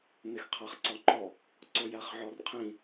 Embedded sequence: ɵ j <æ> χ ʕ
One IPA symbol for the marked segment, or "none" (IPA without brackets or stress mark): æ